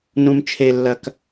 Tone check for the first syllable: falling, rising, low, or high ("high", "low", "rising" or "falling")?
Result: low